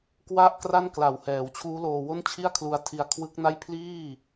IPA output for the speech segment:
k w a˥˩ ʔ k r a˥˩ n k l a˨˩ w h ɛː˩˦ w t͡ɕʰ uː˦˥ l oː˧ w o˥˩ n t͡ɕʰ i˥˩ a̯ kʰ l u˧ a̯ tʰ i˧ a̯ kʰ w ɯ˦˥ k̚ n a˥˩ j pʰ l iː˥˩

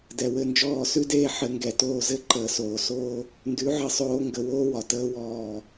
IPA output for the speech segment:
d ɛ˩ w ɘ˥˩ n d͡ʒ ɔː˥˩ s ʉ˥ d eː˥˩ ħ ɘ˩˥ ŋ ɡ ɛ˩ t oː˥˩ z ɘ˥ ǃ əː˧ s oː˧ s oː˥ | n d ʉ˩˥ ʕ ɘ˧ sˤ oː˧ ŋ ɡ ə˧ w oː˥ w ɒ˩ t əː˥ w ɔː˥˩

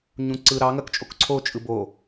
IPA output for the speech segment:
ɲ ũ ǀ ɯ ɾ ɑ ŋ ɐ k t͡ʃʼ o k ǀʰ o t͡ʃʼ ɯ b o

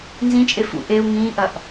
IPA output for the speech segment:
n z ĩ t͡ʃʼ e f ṵ ʔ e u̯ ŋ ĩː ʔ ɐ ʔ

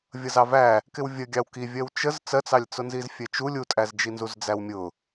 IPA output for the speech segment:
vʲ ʌ z ɑ v æ | k ɪ w vʲ ə ɡʲ ɑ w k i vʲ ɜ w t͡ʃ ə z t͡s ɜ t͡s ɑ lʲ t͡s ʊ n z i z fʲ ɛ t͡ʃ u lʲ u tʼ æ z d͡ʒ i n z u z d͡z æ w mʲ ʊ

